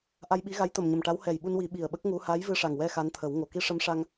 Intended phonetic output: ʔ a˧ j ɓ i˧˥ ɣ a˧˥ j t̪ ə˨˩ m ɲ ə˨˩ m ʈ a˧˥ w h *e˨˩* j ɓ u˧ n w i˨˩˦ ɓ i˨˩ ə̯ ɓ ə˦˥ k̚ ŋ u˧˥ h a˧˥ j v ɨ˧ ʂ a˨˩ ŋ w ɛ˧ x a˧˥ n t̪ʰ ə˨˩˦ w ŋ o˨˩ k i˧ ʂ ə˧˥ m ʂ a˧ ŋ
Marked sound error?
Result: yes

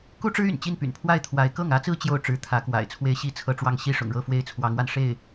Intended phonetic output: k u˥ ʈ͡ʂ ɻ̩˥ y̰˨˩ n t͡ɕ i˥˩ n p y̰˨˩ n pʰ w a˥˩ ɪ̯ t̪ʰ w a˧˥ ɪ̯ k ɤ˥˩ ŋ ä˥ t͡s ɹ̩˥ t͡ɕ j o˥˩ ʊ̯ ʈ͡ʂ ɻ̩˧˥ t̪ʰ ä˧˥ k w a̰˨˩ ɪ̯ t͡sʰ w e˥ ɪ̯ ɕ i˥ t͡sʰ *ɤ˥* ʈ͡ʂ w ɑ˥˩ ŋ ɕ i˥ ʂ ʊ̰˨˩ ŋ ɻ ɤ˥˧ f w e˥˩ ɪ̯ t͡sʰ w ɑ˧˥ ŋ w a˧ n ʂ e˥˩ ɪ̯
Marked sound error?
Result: yes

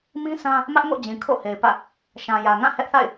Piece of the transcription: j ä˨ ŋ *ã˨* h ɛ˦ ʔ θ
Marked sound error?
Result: yes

